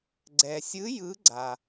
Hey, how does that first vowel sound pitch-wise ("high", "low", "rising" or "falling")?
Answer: low